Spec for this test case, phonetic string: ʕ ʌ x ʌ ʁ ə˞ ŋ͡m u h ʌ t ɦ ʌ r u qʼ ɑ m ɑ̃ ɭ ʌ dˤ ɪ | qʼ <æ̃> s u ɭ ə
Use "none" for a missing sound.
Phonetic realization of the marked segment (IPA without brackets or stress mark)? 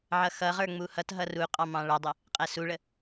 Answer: æ